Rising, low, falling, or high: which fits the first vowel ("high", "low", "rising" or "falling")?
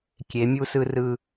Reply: rising